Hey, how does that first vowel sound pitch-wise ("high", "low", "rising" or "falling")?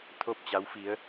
falling